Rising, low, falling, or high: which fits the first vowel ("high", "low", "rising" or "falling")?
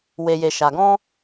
low